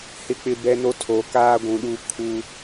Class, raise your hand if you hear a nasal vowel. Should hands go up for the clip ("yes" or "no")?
yes